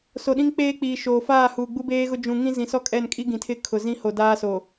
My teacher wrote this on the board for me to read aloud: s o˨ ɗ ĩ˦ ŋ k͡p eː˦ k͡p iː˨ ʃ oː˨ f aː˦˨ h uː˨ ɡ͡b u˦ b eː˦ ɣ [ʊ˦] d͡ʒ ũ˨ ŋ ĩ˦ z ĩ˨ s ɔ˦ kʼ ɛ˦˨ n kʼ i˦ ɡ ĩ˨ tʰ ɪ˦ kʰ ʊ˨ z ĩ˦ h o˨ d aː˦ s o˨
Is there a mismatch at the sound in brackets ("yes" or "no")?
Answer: no